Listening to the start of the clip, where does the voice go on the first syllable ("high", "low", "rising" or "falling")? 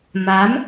rising